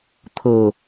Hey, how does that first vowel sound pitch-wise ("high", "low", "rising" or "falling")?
low